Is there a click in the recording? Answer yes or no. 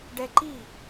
yes